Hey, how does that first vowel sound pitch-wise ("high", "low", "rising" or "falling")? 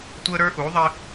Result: high